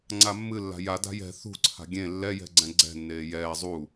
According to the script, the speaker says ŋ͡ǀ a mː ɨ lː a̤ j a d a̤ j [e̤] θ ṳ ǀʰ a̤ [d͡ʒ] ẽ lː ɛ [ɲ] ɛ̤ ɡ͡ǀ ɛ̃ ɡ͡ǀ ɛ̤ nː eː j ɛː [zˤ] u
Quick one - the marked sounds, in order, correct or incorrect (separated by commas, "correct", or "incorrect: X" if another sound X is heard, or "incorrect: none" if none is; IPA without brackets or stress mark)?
incorrect: ɛ̤, incorrect: ɡʲ, incorrect: j, correct